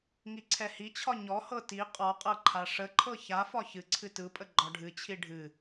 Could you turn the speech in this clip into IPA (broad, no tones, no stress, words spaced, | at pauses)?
ŋiǀʰɛhit͡ɕʰɒ ɲɔhɤ ti qʼɔqʼɤ ǃʰaʂəǃʰɤ çafɒ çɨǀʰɨ tɯpʼə ɡ͡ǃɒɖʱɨt͡ɕʰi ɖʱɨ